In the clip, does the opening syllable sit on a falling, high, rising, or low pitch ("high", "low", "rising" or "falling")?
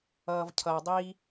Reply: low